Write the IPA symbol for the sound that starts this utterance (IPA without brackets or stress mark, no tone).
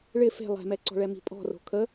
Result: ɭ